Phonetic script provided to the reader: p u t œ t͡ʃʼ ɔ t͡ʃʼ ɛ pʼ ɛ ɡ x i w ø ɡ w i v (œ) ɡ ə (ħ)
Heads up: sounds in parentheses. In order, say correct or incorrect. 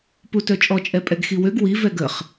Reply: incorrect: ɛ, incorrect: χ

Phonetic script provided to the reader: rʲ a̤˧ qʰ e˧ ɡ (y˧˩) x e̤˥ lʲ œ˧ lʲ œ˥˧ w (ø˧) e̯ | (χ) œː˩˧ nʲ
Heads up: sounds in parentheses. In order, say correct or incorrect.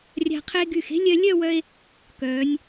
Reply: correct, incorrect: œ˧, incorrect: k

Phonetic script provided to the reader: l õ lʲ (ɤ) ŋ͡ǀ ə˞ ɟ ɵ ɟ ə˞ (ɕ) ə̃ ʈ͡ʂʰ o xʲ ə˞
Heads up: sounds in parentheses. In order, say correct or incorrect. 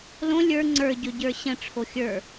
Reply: incorrect: ə˞, correct

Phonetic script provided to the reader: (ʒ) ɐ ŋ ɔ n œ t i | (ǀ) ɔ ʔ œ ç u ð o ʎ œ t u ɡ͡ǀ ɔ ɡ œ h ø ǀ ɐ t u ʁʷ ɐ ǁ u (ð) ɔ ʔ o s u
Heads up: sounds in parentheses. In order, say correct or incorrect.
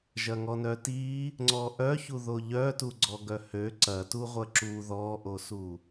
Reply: correct, incorrect: ŋ͡ǀ, correct

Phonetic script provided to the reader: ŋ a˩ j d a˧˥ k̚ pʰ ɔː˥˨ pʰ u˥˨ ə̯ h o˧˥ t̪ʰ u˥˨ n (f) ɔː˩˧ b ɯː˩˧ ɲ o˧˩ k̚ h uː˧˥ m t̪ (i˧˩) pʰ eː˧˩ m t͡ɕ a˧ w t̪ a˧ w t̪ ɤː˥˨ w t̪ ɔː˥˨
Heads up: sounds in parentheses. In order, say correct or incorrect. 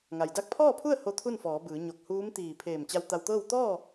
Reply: correct, incorrect: iː˧˩

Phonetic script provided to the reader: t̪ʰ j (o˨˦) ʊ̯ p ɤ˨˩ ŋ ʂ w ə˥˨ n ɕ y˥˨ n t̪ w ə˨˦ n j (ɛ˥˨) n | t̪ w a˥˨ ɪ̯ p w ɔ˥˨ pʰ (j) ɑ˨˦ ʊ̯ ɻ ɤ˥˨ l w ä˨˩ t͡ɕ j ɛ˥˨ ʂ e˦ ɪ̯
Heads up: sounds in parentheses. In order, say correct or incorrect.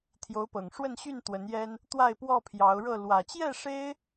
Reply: correct, incorrect: ɛ˦, correct

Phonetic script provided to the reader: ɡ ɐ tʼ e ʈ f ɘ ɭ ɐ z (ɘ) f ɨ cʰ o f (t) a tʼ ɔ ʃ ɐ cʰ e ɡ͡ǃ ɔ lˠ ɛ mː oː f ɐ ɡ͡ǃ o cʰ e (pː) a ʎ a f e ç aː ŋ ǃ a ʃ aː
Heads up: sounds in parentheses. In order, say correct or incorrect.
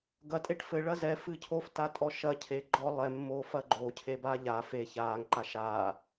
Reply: incorrect: ɛ, correct, incorrect: b

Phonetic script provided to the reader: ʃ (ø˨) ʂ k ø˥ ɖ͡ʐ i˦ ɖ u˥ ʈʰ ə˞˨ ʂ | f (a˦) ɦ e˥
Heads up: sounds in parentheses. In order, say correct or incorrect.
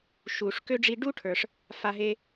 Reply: incorrect: u˨, correct

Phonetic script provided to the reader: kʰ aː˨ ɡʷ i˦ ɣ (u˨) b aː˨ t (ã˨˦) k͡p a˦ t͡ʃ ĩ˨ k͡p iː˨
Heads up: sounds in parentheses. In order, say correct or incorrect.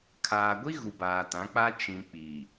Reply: correct, correct

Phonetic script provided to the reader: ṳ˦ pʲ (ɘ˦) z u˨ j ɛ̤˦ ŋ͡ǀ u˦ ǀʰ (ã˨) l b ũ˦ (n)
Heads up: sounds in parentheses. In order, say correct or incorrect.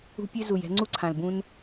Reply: incorrect: ø˦, correct, correct

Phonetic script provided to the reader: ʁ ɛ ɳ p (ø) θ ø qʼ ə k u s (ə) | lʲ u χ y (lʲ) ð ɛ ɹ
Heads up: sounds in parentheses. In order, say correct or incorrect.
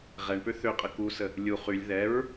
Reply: correct, correct, correct

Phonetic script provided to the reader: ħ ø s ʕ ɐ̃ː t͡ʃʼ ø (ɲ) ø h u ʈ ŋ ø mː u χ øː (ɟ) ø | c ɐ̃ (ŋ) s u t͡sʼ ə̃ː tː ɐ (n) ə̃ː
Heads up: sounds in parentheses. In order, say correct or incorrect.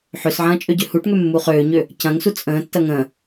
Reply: incorrect: ɟ, incorrect: ɲ, correct, incorrect: ŋ

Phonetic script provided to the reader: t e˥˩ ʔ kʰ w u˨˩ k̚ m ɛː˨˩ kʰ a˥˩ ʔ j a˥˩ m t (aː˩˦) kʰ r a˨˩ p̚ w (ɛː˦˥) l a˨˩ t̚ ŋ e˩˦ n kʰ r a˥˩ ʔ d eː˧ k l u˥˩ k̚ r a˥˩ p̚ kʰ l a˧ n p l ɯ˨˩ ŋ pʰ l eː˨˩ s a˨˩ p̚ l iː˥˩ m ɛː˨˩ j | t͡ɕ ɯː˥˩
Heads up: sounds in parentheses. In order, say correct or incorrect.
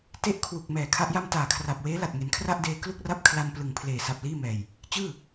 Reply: incorrect: aː˨˩, incorrect: eː˦˥

